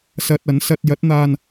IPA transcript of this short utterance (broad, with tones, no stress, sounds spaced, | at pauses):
s ɐ˧ t̚ ɐ˨˥ n s ɐ˧ t̚ j ɐ˨˥ t̚ n̪ aː˧ n